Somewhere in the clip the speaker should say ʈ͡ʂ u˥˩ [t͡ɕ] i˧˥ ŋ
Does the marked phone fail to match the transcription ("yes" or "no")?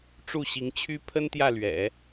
yes